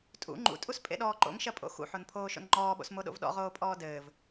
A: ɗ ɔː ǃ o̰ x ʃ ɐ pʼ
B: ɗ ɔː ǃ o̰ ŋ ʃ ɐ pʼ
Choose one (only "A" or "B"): B